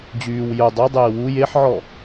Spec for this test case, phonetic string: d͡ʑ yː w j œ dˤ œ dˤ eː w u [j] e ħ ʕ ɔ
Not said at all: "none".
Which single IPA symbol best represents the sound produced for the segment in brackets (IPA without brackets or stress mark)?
j